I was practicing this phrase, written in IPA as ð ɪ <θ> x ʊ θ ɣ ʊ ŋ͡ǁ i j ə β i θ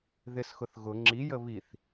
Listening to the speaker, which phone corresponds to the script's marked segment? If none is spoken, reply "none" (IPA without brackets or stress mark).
s